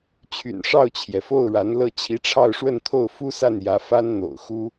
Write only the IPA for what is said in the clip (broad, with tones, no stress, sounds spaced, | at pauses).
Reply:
t͡ɕʰ y̰˨˩ n ʂ ɑ˥˩ ʊ̯ t͡ɕʰ j ɛ˩ f o˥˩ ʊ̯ ɻ a˧˥ n l ɤ˥˩ t͡ɕʰ i˧˥ ʈ͡ʂʰ ɑ˥˧ ʊ̯ ʂ w ə˥˧ n t̪ʰ o˥˩ ʊ̯ f u˥ s a˥˩ n j ä˧˥ f a˥ n n̪ o̰˨˩ ʊ̯ x u˥